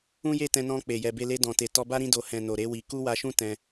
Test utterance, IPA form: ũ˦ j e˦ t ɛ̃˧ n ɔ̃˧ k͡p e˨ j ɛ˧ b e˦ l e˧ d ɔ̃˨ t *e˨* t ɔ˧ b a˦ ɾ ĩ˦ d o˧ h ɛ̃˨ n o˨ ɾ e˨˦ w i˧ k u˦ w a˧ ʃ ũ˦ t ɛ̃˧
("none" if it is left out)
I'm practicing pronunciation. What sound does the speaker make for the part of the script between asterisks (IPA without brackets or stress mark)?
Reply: e˨